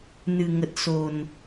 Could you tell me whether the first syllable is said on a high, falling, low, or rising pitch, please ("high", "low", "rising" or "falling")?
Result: low